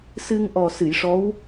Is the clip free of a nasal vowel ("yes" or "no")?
yes